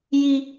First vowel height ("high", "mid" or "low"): high